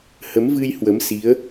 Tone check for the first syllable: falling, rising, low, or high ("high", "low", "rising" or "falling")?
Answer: rising